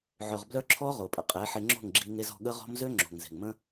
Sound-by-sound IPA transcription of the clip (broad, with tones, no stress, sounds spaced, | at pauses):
ʕ œ˨ ʁ b l œ˧ ǁʰ ɔ˦ ʁ o˨ pʼ ə̰˧ qʼ ɛ˨˦ ħ e˧ ŋ͡ǁ o̤˦˨ ŋ ɡ͡ǁ i˧ ŋ e˧ z ɔ̤˧ ɠ ə˦ ʁ ɔ̤˦ m z ø˦ ŋ͡ǁ o̤˨ ŋ z e̤˨ ŋ m ə̃˦